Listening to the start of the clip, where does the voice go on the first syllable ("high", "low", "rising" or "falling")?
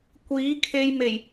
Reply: rising